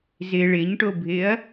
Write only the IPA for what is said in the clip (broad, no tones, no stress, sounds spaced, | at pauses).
z ɪ ɭ ɪ ɲ ʈ o bʱ ɪ ɐ̯